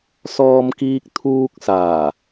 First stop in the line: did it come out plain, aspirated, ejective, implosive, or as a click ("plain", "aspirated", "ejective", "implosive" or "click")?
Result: plain